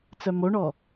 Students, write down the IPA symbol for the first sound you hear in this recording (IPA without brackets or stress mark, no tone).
t͡s